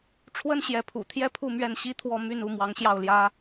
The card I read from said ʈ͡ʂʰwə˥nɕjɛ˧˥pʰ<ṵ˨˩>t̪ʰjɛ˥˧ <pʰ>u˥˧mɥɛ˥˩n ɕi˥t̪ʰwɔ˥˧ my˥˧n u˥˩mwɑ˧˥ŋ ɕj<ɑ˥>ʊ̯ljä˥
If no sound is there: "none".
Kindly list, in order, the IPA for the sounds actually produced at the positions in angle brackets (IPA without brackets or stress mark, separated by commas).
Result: ṵ˨˩, pʰ, ɑ˥˩